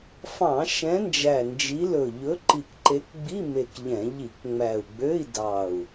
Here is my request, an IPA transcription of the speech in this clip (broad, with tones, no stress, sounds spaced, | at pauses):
f ɑ̃˧˩˧ ʃ ɛ̃˨˦ n d͡ʒ æ˨˩ n d͡ʒ i˨˦ l ɵ˨˩ ʎ ɵ˨˦ ǃ i˨˩ k ǃ e˨˦ k ɡ͡b i˧˥˧ m e˨˩ k ʎ ɛ̃˧˩˧ ʎ i˧˩˧ k ŋ͡m æ˨˩ u̯ ɡ͡b ø˧˥˧ i̯ d ɑ˨˩ u̯